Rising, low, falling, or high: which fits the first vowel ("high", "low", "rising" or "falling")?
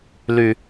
low